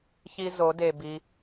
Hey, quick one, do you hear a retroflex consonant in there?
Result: no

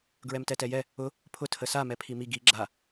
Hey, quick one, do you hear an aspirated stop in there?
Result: yes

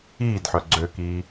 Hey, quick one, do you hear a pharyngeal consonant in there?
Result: yes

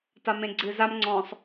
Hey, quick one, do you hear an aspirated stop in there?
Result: no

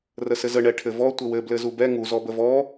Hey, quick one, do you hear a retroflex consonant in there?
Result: yes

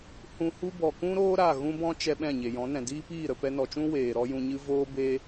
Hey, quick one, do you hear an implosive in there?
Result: yes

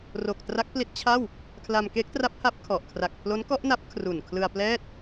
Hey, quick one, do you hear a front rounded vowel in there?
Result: no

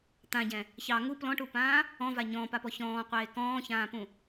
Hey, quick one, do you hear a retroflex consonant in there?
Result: yes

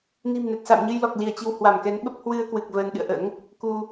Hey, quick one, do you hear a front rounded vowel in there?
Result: no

